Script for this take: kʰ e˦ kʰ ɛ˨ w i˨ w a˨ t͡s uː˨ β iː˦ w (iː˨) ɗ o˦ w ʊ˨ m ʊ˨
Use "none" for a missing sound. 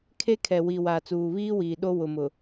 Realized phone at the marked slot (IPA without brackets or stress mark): iː˨